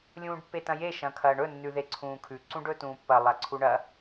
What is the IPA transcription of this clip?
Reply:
lʲũːɖpːetɐ̃je ʃɐ̃kʰɐːɳɵ nːʉðeǀʰũːkʰʉ ǀũɖɵtũːpːɐ lˠaǀʰuɳɐ

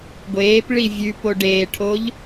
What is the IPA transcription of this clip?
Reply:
ɡʷeːpɭi vʲʉpo ɖeːʈʰoʎ

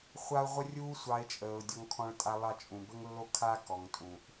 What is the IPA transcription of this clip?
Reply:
χʷa˦ʊ̯ ʁʷə˥rʲuː˥ sʷɑ˦ɪ̯t͡ʃʼəː˨ʊ̯ dʲɔ˦ŋkʰɔ̃˦ɭtʼa˦ lˠɑ˦t͡ʃʼũ˨bə˥ŋlːo˥ kʰa˦kɔ˩ŋ tʼũ˩ʔ

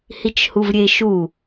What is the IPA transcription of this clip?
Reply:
hit͡ʃhuvɾʲeʃu

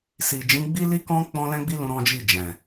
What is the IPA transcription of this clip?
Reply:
si˨ d͡ʒĩ˨˦ɡ͡bi˦li˦kɔ̃˦ k͡pɔ̃˦lɛ̃˦ɡ͡bi˦lũ˧ ɾɔ̃˦d͡ʒi˦˨d͡ʒɛ̃˨

